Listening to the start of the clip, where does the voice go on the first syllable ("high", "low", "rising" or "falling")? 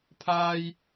high